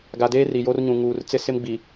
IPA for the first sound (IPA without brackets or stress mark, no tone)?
ɡ